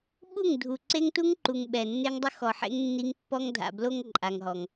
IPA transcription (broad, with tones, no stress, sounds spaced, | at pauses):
ɓ u˦˨ ŋ dʱ u˨ ǀ e˦ ŋ t u˦ ŋ ǃ u˨ ŋ ɓ ɛ˨ nː e˦ ŋ dˤ ʊ˦ x ɔ˨ ħ ḛ˦ ŋ nː i˦ ŋ pː ɔ˦ ŋ dʱ a̰˨ b l o˦ ŋ ǃʼ a˨ ŋ ɦ ɔ˨ ŋ